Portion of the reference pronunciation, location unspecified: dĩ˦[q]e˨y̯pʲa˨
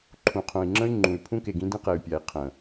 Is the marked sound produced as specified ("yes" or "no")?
yes